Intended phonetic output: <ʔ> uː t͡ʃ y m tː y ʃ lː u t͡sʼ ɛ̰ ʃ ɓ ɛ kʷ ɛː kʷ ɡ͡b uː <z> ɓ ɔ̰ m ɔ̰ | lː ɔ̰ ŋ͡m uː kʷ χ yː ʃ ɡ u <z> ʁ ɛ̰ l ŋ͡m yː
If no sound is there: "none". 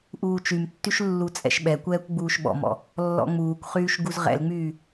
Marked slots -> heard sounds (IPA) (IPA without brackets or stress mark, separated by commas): ʔ, ʃ, z